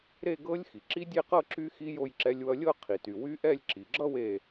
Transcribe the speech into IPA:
ɾ e˥˧ ɡ ɤ˦˥ lʲ x i˩ ǁ i˦˥ dʲ e˥˧ q ɤ˥˧ ǁ y˦˥ x i˦˥ j o˥˧ j ǁ ɛ˦˥ lʲ w ʌ˦˥ lʲ ɤ˥˧ qʰ i˩ t y˩ w y˦˥ ʔ ɛ˥˧ lʲ ǁ i˩ ɡ͡ǁ ʌ˥˧ w e˥˧

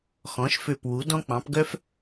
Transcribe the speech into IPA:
x ɔ̃˩˥ ʃ f ø˧˩ p w u˩˥ d ɔ̃˦ k͡p ɑ̃˩˥ p ɡ œ˦ f

